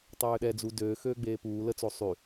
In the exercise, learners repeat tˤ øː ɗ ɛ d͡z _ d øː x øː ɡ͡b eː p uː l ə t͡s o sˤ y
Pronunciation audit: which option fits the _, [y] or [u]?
u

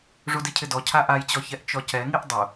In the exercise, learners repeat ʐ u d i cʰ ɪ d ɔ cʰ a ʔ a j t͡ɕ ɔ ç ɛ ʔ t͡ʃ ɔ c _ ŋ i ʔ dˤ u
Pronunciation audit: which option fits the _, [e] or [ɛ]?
ɛ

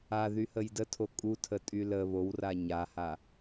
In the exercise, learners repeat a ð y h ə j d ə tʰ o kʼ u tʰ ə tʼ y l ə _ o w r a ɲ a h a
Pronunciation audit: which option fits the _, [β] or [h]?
β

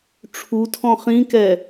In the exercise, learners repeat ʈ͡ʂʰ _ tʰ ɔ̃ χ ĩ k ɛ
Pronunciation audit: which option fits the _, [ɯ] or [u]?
u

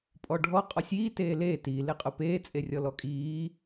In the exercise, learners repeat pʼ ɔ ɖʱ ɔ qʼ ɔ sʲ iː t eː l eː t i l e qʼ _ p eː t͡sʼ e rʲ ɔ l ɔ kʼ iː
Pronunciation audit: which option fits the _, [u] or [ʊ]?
ʊ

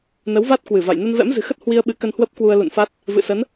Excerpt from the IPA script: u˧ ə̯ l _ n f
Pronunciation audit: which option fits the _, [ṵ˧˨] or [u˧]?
ṵ˧˨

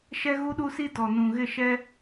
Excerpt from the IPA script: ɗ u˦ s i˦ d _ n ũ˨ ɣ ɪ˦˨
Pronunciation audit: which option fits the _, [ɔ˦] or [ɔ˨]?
ɔ˨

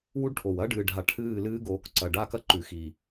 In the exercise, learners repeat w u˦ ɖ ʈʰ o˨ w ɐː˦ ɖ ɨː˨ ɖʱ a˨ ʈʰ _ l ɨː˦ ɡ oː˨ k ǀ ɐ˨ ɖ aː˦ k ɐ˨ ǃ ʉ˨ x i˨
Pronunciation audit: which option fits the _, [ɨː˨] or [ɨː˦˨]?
ɨː˦˨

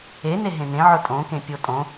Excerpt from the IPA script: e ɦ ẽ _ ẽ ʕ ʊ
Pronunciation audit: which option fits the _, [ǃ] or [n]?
n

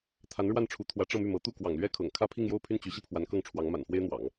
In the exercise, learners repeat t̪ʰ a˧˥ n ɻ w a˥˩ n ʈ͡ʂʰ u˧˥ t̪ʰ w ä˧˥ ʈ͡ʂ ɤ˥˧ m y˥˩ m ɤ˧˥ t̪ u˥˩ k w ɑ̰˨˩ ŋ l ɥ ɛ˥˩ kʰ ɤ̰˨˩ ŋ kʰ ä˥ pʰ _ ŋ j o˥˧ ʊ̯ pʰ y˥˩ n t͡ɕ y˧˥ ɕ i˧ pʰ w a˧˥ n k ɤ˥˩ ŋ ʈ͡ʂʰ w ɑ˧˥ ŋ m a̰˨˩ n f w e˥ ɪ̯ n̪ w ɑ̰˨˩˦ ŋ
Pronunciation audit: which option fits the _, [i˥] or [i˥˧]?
i˥˧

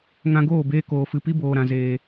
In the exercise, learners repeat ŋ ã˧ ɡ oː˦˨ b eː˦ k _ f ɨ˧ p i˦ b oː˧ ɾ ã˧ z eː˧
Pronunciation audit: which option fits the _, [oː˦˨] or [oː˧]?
oː˧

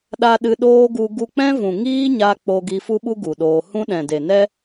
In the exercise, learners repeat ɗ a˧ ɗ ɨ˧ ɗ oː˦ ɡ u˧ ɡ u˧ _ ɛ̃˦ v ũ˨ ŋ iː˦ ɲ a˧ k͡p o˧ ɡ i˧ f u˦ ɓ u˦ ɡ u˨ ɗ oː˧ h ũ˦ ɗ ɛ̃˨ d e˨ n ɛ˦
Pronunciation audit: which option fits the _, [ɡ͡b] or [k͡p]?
k͡p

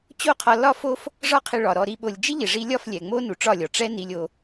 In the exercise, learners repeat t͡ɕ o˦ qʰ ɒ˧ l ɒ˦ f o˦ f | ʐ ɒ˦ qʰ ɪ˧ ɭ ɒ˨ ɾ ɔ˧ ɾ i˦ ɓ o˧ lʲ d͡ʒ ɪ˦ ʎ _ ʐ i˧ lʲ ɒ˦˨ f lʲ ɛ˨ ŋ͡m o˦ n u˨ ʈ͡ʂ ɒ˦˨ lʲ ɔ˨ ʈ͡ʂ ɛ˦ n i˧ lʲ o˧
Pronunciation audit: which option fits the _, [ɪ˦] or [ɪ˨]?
ɪ˨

